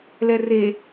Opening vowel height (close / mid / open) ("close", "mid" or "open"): mid